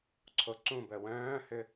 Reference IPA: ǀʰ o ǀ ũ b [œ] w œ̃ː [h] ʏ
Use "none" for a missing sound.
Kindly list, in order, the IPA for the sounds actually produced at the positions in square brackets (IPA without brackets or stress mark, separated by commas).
œ, h